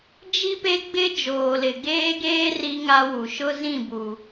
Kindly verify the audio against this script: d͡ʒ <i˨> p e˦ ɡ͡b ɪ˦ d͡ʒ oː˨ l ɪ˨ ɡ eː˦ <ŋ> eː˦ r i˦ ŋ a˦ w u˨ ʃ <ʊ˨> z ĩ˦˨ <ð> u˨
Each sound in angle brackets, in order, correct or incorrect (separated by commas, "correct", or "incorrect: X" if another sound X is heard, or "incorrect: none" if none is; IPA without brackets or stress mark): incorrect: i˦, incorrect: ɡ, incorrect: ʊ˦, incorrect: b